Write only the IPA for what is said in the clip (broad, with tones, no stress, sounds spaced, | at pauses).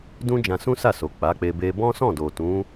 d ũ˦ d͡ʒ ã˧ s ũ˦ s a˦˨ s o˨ k͡p a˨˦ k͡p e˧ b e˧ b ɔ̃˦ s ɔ̃˦˨ d o˨ t ũ˨˦